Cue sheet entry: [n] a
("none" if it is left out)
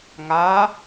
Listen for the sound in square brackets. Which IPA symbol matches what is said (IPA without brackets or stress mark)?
ŋ